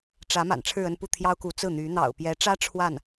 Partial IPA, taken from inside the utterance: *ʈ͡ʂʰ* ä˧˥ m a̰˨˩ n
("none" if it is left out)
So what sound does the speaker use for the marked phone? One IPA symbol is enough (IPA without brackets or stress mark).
ʈ͡ʂ